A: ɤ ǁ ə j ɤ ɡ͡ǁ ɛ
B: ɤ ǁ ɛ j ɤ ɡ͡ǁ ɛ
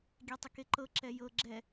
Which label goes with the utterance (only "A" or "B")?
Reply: B